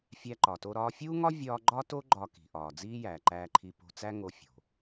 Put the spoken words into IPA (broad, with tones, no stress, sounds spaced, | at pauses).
fʲ æ˧ ǃ ɒ˩ t o˧ ɾ ɒː˧ fʲ uː˥ ŋ ɒ˥ vʲ ɒː˥ ɡ͡ǃ ɒ˥ t o˥ ɡ͡ǃ ɒ˧ k i̤˩ ʔ ɒː˩ d͡z iː˥ j æː˩ ǃ æː˧ ǃʰ i˧ p o̤˧ t͡s æ˥ ŋ o˧ fʲ o̤˩